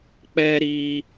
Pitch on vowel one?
high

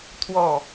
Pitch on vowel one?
falling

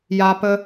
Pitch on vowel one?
high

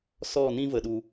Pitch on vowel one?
falling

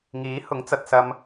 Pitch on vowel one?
rising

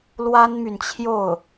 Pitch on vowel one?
high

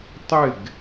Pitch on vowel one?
falling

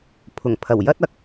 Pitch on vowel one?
low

